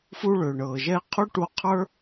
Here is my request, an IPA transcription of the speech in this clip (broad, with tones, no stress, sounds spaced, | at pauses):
f u˧ ɭ ʏ˩ ɳ ɤ˩ ʒ ɛ˧ qʰ u˥ ʈ u˧ qʰ ə˞˥